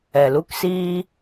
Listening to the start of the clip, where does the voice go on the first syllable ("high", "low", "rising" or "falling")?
low